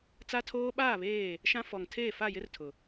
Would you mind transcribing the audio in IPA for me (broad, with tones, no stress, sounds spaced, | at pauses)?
t͡s a˦ tʰ oː˦ ɓ aː˦˨ β eː˦˨ | ʃ ã˦ f ɔ˨ ŋ tʰ eː˦˨ f a˦˨ j ɪ˦ r tʰ ʊ˨